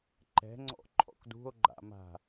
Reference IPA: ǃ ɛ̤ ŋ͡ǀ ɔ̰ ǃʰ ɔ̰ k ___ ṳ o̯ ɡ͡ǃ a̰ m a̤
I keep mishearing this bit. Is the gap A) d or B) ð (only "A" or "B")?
A